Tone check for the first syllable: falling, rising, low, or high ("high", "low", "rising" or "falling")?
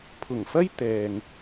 low